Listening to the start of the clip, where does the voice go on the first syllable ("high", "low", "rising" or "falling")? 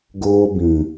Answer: high